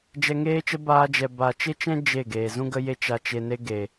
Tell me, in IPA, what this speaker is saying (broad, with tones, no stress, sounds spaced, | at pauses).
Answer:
d͡ʒ ɛ˧ ŋ eː˦ t͡ʃ ə˦ b aː˧ d͡ʒ ɛ˨ b a˨ t͡ʃ e˦ t͡ʃ ɛ̃˦ d͡ʒ e˦˨ ɡ eː˨ z ũ˦ ɡ ə˦ j e˦ t͡ʃ a˧ t͡ʃ e˧ n e˦ ɡ e˨